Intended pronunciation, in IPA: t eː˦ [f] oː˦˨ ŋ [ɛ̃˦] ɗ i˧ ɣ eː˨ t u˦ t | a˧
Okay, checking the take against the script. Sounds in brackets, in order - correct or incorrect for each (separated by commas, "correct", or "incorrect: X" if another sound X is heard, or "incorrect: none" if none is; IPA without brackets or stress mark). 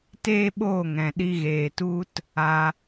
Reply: incorrect: ɓ, incorrect: ɛ̃˨